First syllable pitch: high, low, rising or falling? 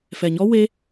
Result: low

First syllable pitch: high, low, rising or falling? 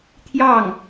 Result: falling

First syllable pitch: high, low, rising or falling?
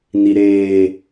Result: low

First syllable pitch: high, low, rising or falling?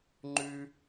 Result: high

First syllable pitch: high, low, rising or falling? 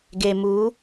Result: low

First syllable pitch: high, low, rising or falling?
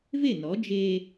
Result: falling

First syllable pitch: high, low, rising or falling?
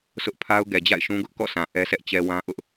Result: high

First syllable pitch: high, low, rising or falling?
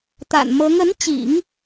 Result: low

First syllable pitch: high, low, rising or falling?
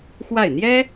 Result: falling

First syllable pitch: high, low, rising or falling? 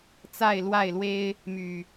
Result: falling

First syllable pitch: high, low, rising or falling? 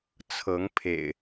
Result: rising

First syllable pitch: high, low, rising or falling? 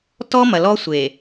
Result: high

